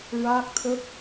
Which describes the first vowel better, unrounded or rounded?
unrounded